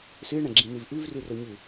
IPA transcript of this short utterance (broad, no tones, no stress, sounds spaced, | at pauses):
s ɨ ɳ ɐ̃ ɡ͡ǁ ĩ n̪ ɨ v ʔ ʉ v r ʉ r ɵ ɲ ʉ